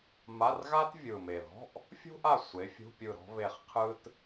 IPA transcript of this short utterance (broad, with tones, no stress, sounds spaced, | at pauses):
m a˧˥˧ r ɣ a˥ t vʲ ɯ˨˩ m e˨˩ ð ɔ̤˧˥˧ ʔ | fʲ ṳ˥ ʔ a˦˨ sʷ e˨˥ fʲ ṳ˧˥˧ pʲ ɯ˦˨ ɾ ɔ̤˥ β e˦˨ χ qʰ ɯ˥ t